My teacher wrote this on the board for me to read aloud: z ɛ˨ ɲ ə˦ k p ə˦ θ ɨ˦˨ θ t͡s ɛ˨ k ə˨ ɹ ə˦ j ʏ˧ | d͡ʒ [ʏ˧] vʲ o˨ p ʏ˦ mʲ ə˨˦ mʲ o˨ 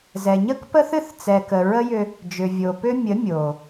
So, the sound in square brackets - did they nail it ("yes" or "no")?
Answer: no